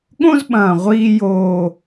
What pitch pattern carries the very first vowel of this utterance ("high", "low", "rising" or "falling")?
high